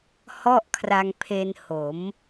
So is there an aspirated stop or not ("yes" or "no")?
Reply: yes